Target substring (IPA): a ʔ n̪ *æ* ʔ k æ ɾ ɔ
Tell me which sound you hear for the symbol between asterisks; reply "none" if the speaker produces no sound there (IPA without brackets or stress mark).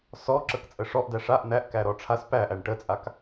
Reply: æ